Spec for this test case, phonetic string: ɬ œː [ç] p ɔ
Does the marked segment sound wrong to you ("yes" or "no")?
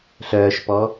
yes